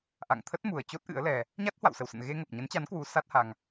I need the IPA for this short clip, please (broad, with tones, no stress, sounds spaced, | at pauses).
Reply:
ʔ a̰˧˨ ŋ t̪ʰ ə˦˥ t̚ m u˨˩ ə̯ t͡ɕ o˦˥ t̚ ʔ ɨ̰˧˥ ə̯ l ɛ˧ | ɲ a˦˥ t̚ h w a̰˧˨ w s ə˧˩ w s ə̰˧˨ n ɣ e˧ ŋ ə˨˩ p̚ ɲ ə˨˦ n t͡ɕ a˨˦ n k w u˨˦ s a˦˥ t̚ h a˧ ŋ